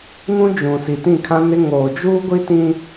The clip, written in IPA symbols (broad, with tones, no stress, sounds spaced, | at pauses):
ŋ ũ˦ d͡ʒ ũ˨ s i˨ t ĩ˦˨ kʰ ã˦ n ɪ˦ ŋ oː˨ d͡ʒ uː˦ ɡʷ i˦ t ĩ˦